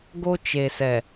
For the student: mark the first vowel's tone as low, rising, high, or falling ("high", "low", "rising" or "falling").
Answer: high